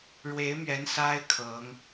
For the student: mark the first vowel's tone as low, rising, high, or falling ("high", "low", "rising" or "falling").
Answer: rising